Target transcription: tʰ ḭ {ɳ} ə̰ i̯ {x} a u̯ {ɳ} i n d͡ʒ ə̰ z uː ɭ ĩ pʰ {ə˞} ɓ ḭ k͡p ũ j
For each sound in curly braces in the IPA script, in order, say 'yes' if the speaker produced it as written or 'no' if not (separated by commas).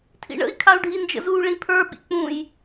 yes, no, no, yes